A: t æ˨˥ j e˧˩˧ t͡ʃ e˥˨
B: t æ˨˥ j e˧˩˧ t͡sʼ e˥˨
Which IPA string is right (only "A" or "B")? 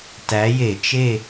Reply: A